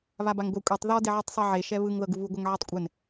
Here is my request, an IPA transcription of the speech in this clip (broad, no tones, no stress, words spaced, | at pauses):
βabaŋɡʷɛ kʷʼetˤ ðɔ deʕɯtˤsˤɛʕe ʃɛβɯŋ ðɤɡuβu ɡʷɤŋʕitˤkʷʼɛn